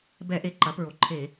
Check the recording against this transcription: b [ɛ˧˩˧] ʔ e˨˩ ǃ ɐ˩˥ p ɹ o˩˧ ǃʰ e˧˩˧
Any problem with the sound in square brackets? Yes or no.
no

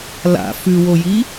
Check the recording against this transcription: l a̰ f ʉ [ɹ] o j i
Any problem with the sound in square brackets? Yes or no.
yes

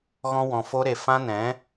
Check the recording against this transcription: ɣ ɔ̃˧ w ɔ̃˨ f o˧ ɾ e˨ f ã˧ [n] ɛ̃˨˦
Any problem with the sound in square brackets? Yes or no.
no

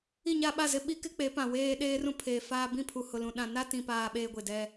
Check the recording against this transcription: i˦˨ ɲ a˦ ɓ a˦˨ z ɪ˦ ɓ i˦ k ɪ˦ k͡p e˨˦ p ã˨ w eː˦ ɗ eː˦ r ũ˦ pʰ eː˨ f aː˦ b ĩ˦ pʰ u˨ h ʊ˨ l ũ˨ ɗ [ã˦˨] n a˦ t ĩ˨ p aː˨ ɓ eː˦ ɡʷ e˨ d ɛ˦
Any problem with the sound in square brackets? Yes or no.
yes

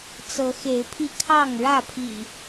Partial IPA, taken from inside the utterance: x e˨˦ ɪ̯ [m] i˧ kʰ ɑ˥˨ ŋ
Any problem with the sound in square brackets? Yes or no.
yes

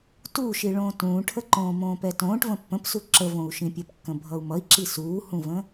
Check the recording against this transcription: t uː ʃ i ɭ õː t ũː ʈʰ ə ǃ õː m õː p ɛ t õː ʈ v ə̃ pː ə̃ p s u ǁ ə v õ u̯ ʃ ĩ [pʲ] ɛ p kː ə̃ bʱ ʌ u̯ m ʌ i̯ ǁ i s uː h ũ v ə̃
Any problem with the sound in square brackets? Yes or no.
no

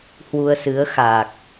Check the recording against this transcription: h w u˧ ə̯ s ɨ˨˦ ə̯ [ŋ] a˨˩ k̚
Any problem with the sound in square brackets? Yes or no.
yes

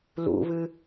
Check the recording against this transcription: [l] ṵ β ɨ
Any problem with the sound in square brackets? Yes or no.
no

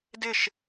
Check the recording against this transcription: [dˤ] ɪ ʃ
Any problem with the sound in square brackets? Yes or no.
yes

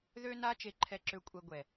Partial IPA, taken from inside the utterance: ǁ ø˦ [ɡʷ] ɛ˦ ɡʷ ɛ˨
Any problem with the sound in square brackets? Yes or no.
yes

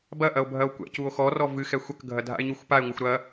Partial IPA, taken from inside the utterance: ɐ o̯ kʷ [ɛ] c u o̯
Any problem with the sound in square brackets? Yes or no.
yes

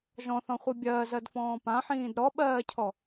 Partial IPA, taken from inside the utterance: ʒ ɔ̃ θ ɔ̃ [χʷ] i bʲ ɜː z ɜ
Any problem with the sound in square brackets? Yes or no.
no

